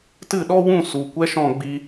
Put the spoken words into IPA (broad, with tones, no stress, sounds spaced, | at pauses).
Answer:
t ɨ˦˨ ɗ ɔ˦ w ũ˦˨ s u˨ kʷ ɛ˦ ʃ ɔ̃˦˨ ɡ͡b i˧